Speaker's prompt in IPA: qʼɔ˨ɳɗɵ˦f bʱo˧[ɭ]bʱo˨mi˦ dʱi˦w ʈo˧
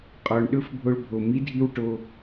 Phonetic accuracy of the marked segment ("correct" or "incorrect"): correct